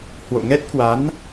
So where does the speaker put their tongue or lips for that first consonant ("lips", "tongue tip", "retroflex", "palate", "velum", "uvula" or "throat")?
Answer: throat